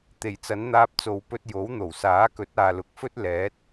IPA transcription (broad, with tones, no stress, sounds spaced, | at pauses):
t̪ e˨˩ j t͡s ɐ˨˥ n n̪ aː˧ p̚ t͡s o˨˧ w p ɵ˧ t̚ j o˨˥ w n̪ o˨˩ w s aː˨˥ k ɵ˨˥ t̚ aː˨ l ʊ˨˥ k̚ f ɵ˥ t̚ l ɛː˨˥ t̚